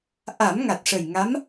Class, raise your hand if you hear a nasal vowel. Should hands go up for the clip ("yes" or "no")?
no